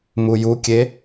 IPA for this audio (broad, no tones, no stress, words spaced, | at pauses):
mujukʲe